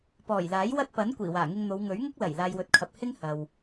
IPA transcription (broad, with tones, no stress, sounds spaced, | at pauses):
p ɔː˨˩ j l aː˨˥ j w ɐ˥ t̚ p ɐ˨˥ n kʷ iː˨˩ w aː˨˩ ŋ ɪ˧ ŋ n̪ o˨˧ w ŋ ɵ˨˥ ɥ ŋ ʊ˥ k̚ l ɐ˨˩ j l aː˨ j w ɵ˨ t̚ kʰ ɐ˨ p̚ h ɪ˥ ŋ h ɐ˨ w